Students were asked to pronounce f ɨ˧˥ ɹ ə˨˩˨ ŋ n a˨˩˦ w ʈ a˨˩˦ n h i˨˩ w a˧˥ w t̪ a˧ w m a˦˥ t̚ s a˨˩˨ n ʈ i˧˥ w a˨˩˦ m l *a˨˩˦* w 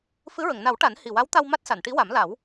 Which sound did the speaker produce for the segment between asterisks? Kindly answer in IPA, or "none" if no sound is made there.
a˨˩˦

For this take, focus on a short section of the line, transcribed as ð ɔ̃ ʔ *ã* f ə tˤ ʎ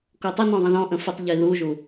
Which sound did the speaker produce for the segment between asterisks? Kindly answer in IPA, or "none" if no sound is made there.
ə̃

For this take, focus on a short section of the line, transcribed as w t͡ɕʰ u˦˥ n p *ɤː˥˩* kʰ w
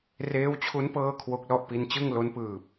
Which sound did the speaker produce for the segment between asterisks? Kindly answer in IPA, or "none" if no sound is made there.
ɤː˥˩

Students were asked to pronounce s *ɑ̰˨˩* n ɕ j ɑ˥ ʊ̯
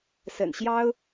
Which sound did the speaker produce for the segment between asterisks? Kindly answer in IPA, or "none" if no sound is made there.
ə̰˨˩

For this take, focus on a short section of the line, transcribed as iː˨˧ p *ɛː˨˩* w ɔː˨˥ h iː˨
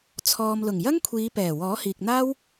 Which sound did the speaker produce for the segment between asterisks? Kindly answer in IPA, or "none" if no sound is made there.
ɛː˨˩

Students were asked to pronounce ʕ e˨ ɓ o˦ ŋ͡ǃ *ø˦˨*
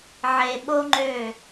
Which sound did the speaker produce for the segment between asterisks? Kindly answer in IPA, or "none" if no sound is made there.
ø˦˨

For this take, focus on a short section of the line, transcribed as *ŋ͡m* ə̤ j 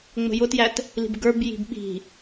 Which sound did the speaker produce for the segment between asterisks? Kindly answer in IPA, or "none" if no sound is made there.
ŋ͡m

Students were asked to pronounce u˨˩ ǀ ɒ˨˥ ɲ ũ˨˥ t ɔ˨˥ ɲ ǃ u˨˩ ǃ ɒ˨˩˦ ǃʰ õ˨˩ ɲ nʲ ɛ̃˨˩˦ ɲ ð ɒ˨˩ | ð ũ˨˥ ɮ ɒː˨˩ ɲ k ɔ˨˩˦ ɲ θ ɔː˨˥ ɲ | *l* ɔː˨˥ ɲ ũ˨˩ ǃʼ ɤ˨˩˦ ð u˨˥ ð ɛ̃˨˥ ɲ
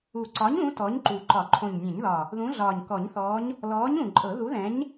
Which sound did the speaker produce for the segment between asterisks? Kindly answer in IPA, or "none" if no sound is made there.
l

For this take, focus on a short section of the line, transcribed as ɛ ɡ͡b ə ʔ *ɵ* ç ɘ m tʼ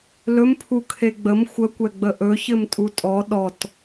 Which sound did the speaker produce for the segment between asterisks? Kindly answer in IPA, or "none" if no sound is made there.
ɵ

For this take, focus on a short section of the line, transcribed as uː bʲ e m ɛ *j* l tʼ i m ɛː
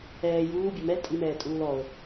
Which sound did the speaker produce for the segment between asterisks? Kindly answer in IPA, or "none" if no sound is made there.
none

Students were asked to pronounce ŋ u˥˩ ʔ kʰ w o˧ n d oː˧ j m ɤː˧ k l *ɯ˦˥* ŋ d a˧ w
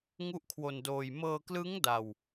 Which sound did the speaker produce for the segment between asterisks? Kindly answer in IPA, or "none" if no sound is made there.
ɯ˦˥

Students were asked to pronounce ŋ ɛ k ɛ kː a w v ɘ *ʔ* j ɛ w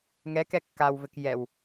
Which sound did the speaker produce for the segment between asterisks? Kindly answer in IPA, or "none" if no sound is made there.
k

